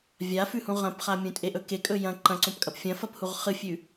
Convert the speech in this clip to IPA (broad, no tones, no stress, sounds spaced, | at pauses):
vʲ a f ʉ h ũ ʁ ɐ̃ p χ a mʲ ũ tʼ e ʔ ɵ k e kʼ ɵ j ɐ̃ ǃ ɐ̃ ǀ õ p kʼ ɐ p fʲ ɐ̃ f ɐ p h u ʁ χ ɨ fʲ ʉ